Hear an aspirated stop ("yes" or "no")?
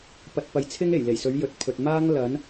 yes